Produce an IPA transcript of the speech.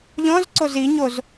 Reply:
ʎ ɔ̃ z ǀ o z i ɲ o z

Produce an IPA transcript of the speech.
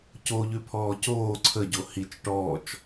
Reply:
c o ʎ ʉ pʰ ɔː c oː ǀʰ ə ɟ o h i t͡ʃ ʈ ɔː t͡ʃ

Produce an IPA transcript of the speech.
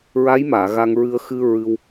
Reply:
ɹ a˧˥ j m aː˨˩˨ ɣ a˧ ŋ ɹ ɨ˧ ə̯ x ɨ˧ ɹ ɨ˧ w

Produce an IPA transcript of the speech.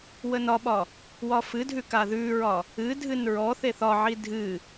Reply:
w ə n ɒ ɓ ɒ | w ɒ f ɨ dʱ ʉ k a ð ʉ ɹ ɒ | ɨ dʱ ɨ n ɹ ɔ θ e θ ɒ ʕ i dʱ ɨ

